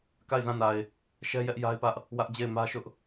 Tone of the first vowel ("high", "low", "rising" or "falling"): falling